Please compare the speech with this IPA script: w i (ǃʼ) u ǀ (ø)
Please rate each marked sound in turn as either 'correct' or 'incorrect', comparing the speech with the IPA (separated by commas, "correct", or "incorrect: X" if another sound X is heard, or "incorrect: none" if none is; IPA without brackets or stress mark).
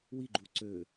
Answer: incorrect: ɡ͡ǃ, correct